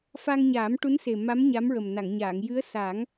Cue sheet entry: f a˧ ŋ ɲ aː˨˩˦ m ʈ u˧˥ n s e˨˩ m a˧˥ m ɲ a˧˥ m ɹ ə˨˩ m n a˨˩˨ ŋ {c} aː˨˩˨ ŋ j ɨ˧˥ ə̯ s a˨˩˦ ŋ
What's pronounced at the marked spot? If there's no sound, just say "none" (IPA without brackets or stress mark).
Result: ɲ